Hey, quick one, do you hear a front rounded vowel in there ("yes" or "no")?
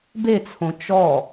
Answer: no